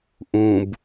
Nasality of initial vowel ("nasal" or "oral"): nasal